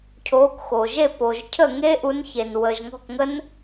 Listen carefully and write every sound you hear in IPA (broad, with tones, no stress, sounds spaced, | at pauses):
cʰ oː˨˦ k x oː˩ ʒ e˥˩ p oː˩ ʒ cʰ əː˥˩ ŋ e˦˥ ʔ u˨˦ n ç e˩ n w əː˩ ʒ ŋ ɔ̤˥˩ k ŋ ə˦˥ n